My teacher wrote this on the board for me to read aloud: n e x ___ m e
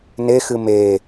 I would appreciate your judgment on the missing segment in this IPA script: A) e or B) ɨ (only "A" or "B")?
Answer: B